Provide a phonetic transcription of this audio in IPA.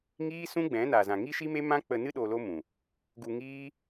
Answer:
ŋ iː˦ s ũ˦ ɡ͡b ɛ̃˨˦ n a˨ z ã˨ ŋ i˦ ʃ i˦ m e˦ m ã˦ k͡p ə˧ n ɨ˦ ɗ o˧ l o˦ m ũ˨ | ɡ u˧ ŋ iː˦

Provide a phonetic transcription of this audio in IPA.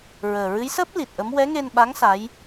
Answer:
ɹ əː˨˩ ɹ ɨ˧˥ j s əː˦˥ p̚ l i˨˩ t̚ ʔ ə˧˥ m w ɛ˧˥ ŋ e˧ n ɓ a˧˥ ŋ s a˧˥ j

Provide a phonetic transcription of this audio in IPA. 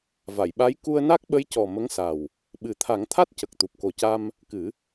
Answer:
v a˨˩˨ j ɓ a˧˥ j k u˧ ə̯ n a˦˥ k̚ ɓ ə˧˥ j c ɔ˨˩ m ə˧˥ ŋ s a˨˩ w | ɓ ɨ˨˩˦ t̪ʰ a˨˩˦ ŋ t̪ʰ a˦˥ t̚ c ə˨˩ k̚ t̪ u˨˩ p̚ k o˨˩ c a˧ m | k ɨ˨˩˦

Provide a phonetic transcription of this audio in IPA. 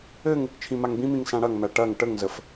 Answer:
ɘ ŋ | t͡ʃʰ ĩ m a ŋ b ĩ m ĩ ŋ s ã ɽ ɐ ŋ m æ ʈ ɐ ŋ ʈ ə ŋ z ə f

